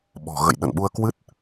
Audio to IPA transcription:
ɓ ɔ̤˨˩ ɣ ə̰˧˨ j ɗ ə̰˧˨ n ɓ u˧ ə̯ k w ɨ˦˥ t̚

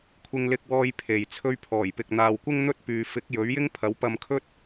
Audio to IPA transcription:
kʷʰ ɪ˧ ŋ l ɪ˧ k̚ w ɔː˧ j pʰ e˨ j t͡sʰ ɵ˧ ɥ pʰ ɔː˨˩ j p ɪ˨ k̚ n̪ aː˨ w kʷ ɪ˥ ŋ n̪ ɵ˥ t̚ p yː˨ f ɪ˨˥ k̚ j ɵ˨˥ ɥ j ɪ˥ ŋ pʰ ɐ˨˥ w p ɐ˧ m kʰ ɵ˥ t̚

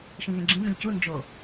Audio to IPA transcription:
ʃ ĩ ɣ ẽ ɡ͡ǁ ĩ m ẽ ʎ c u n d͡ʒ o

